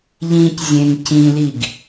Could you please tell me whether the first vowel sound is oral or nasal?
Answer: nasal